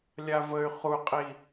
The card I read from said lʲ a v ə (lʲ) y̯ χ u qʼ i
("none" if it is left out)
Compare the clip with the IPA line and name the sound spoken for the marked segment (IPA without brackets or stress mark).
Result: none